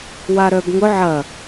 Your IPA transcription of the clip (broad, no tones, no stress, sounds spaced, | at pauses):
w a ɾ œ b ŋ ʊ ʕ ɐ